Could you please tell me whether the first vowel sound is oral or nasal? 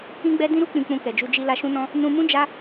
nasal